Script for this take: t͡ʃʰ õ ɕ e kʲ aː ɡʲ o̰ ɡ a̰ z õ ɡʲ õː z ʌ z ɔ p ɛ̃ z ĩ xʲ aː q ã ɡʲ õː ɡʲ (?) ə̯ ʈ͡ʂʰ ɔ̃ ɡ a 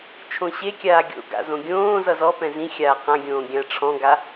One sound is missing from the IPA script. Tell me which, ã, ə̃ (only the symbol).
ã